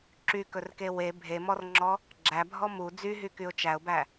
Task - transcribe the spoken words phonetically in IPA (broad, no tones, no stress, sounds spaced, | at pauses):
ǁ y k ɵ r k e w e bʱ e m ɔ r ŋ͡ǁ ɔ | ɡ͡ǁ æ bʱ ɔ m u d͡z y ɦ y k y ʊ̯ t͡ʃ æ ʊ̯ b æ